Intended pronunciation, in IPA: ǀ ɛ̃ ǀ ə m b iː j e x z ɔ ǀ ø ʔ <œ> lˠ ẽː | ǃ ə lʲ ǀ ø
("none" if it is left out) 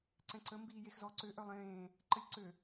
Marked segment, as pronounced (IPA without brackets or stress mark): œ